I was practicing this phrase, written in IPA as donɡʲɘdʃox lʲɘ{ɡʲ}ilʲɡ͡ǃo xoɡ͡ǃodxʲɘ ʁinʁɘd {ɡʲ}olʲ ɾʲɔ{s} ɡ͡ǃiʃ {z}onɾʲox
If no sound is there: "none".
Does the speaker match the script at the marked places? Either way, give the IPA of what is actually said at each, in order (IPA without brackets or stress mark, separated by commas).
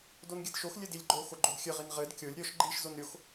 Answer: d, kʲ, ʃ, z